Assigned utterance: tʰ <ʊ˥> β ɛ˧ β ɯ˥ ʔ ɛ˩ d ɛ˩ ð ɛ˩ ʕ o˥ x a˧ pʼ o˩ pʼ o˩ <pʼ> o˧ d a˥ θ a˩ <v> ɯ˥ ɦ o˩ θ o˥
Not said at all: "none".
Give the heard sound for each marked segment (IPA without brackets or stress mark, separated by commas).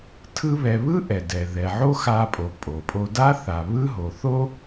ɯ˥, pʼ, β